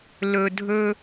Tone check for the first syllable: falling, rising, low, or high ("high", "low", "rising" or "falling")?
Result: low